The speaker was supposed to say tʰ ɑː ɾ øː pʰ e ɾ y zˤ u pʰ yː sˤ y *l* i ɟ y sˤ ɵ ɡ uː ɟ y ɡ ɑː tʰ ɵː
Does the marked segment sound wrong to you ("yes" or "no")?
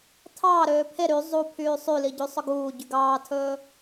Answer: no